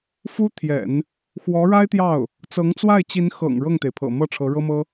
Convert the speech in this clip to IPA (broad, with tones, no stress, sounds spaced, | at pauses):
f u˥ t̪ʰ j ɛ̰˨˩˦ n | x w ɔ˧˥ ɻ a˥ ɪ̯ t̪ j ɑ˥˩ ʊ̯ | t͡s ɤ˧˥ ŋ t͡s w a˥˩ ɪ̯ t͡ɕ i˧˥ n x ɤ̰˨˩ ŋ ɻ ɤ˥˩ ŋ t̪ e˩ ɪ̯ pʰ ɤ̰˨˩ m ɤ˥˩ ʈ͡ʂʰ ɤ˧˥ ɻ ɤ˥ m ɤ˥